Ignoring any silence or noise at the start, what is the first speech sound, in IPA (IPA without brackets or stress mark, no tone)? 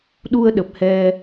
ɗ